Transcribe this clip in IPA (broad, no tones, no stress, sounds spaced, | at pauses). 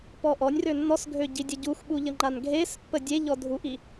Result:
p ɔ ʔ ɔ nʲ r ø nː ɔ s ɡʱ ø ɟ i dʲ ə ɟ u x ɓ u ʎ ə ŋ͡ǃ a n ɡʱ e s pː ə dʲ e ʎ ɔ dʱ u ʔ i